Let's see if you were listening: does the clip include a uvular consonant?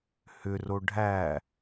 no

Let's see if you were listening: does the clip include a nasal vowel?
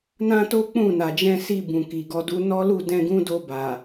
yes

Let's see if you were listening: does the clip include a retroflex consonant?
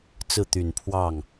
no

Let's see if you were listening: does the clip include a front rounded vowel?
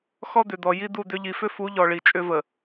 yes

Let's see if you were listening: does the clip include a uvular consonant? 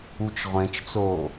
yes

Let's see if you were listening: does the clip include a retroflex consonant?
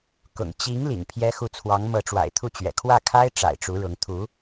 yes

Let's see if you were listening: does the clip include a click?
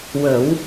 no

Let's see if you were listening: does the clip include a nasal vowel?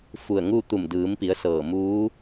no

